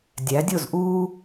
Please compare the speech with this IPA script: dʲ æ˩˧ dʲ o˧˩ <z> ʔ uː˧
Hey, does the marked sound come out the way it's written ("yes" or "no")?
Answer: yes